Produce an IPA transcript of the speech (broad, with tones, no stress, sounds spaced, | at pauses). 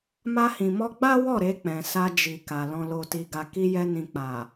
m a˧ h ĩ˨ m ɔ˧ ɡ͡b a˦ w ɔ˦˨ ɾ e˧ k͡p ɛ̃˨ s a˧ d͡ʒ i˨ k a˨ l ɔ̃˨ l o˨ t i˨ ɡ a˨ k i˧ j ɛ˧ n ĩ˨ k͡p a˨